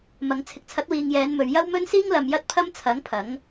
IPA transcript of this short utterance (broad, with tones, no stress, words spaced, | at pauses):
mɐ˨ŋ t͡sʰɪ˨k̚t͡sʰɐ˨˥t̚wiː˨ŋ jɛː˨˧n mɵ˨ɥjɐ˥wmɵ˥nsiː˥ŋ lɐ˨mjɐ˧t̚ pʰɐ˥mt͡sʰɐ˨˥ŋ pʰɐ˨˥ŋ